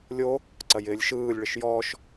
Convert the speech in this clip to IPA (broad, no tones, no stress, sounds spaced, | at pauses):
lʲ o | ǀ ɐ j ɪː lʲ ʃ ɯː lʲ ɭ ɪ ʃ j ɔː ʃ